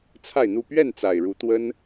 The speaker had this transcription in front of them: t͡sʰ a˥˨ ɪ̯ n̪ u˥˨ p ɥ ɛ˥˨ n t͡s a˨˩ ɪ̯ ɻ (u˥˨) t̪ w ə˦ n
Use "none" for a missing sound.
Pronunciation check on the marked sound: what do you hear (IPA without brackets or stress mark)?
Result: u˨˦